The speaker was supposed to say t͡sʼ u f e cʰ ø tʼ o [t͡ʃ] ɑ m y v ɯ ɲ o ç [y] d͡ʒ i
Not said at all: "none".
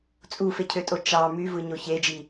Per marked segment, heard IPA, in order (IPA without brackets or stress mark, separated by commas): t͡ʃ, e